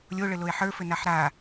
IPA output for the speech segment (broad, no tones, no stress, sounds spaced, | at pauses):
lʲ o ɭ ɘ l o e̯ ħ ə˞ f ɘ n a ħ ɾ a